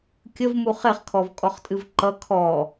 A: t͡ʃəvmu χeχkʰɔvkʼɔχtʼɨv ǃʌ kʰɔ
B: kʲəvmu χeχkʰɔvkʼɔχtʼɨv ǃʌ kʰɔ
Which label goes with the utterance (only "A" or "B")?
B